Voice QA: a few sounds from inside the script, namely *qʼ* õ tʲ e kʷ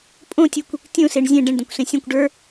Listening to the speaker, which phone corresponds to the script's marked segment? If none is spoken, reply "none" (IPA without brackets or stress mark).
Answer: pʼ